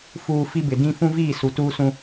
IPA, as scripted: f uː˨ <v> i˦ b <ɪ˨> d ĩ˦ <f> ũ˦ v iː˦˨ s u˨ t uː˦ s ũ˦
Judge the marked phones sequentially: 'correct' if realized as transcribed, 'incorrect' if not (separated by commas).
incorrect, correct, correct